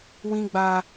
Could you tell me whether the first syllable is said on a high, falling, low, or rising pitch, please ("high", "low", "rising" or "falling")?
high